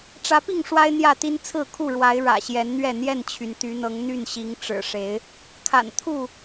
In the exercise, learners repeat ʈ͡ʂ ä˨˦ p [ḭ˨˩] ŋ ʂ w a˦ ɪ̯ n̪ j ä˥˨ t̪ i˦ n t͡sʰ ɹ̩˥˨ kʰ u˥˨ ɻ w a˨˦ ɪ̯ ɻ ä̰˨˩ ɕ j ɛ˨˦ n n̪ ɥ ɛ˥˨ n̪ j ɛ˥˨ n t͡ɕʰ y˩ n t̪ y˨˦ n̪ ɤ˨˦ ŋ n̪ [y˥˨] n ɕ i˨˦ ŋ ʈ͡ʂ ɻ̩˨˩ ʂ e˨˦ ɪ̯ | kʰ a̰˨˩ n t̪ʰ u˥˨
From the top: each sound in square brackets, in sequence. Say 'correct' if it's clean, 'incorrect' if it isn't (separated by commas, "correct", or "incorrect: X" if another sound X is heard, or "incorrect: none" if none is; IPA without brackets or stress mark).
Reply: incorrect: i˥˨, correct